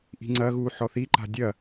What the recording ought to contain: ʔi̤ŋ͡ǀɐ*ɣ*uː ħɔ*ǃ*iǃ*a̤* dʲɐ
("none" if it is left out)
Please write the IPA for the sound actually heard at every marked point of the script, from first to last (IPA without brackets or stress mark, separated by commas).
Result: ɣ, θ, a̤